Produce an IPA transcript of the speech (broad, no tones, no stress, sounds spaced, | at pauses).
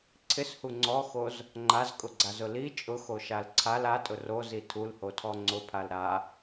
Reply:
ǀʰ ɪ s h u ŋ͡ǀ ɔ x o z | ŋ͡ǃ a z kʼ ʊ ɡ͡ǀ a z ʊ l i t͡ʃʼ ʊ x o ʃ a l ǀʰ a l a tʼ ʊ r o z i tʰ u l h o tʰ ɔ ŋ͡ǀ ʊ pʰ a l ɾ a